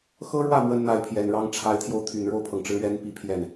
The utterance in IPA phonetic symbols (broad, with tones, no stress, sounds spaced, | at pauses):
x ɤ˥ ɻ w ä˥˩ m w ə˥ n n̪ a˥˩ ɪ̯ pʰ j ɛ˨˩ n ɻ ɑ˥ ŋ ʈ͡ʂʰ a˧˥ ɪ̯ t̪ʰ j o˧ ʊ̯ t̪ʰ y˨˩ n ɻ o˥˩ ʊ̯ pʰ ɤ˩ ŋ ʈ͡ʂ ɻ̩˧˥ ɥ ɛ˧˥ n p i˥˧ pʰ j ɛ˥˩ n